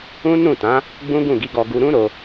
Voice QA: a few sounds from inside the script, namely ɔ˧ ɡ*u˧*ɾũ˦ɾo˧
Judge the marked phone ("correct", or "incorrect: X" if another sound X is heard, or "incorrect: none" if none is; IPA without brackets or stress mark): correct